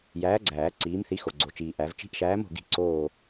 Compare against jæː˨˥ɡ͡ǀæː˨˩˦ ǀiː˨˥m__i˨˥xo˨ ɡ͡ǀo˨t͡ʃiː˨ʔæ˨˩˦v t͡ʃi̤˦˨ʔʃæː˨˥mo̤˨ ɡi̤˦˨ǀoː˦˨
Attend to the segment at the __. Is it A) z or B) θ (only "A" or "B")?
B